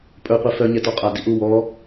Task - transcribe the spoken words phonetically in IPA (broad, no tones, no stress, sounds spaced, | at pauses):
pʼ ɵ qʷ ɛ f œ ɲ ɛ t ɔ qʼ a d i ʔ u w ɔ